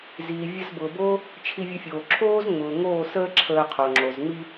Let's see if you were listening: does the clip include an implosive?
no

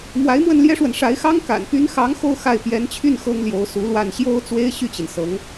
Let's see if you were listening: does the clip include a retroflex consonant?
yes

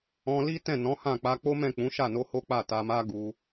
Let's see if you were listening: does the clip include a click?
no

